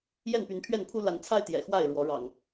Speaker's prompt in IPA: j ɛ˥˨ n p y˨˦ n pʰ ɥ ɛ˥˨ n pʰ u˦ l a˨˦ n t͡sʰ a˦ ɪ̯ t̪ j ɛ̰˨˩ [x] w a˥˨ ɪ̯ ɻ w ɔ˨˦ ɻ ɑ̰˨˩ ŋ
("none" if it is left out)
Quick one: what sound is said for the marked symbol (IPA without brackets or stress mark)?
x